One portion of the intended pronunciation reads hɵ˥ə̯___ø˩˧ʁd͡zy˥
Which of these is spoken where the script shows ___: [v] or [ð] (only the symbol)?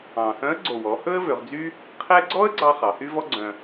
v